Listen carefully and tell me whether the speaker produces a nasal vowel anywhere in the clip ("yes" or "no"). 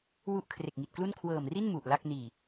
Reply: no